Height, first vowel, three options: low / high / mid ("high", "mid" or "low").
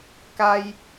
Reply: low